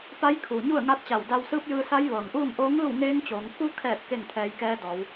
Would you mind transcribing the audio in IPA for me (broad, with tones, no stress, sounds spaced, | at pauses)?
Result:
p a˧˥ j kʰ uː˩ ɲ u˥˨ ə̯ ŋ a˧˥ t̚ t͡ɕ a˧˩ w d a˧ w s ɯː˧˥ p̚ j ɯː˧ s a˧˥ j ʋ ɤː˩ ŋ ʔ uː˥˨ ŋ ʔ oː˧˥ ŋ ɯː˥˨ w ŋ eː˧˥ ŋ t͡ɕ oː˩˧ ŋ k u˧ kʰ ɛː˧˩ t̚ k e˥˨ ŋ t̪ʰ ɛː˧ j k ɛː˧˥ d ɔː˩˧ w